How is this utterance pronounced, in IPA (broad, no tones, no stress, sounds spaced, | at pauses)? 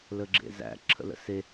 l ə ɡ͡ǁ ḛ z æ̰ ǁʰ ə̰ l ə̰ s e